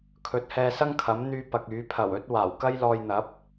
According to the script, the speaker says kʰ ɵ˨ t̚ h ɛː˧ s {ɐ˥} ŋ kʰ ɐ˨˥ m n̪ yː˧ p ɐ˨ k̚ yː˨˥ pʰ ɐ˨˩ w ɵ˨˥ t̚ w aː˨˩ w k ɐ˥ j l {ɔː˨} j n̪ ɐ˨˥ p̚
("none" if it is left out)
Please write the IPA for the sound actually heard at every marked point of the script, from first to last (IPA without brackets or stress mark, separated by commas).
ɐ˥, ɔː˧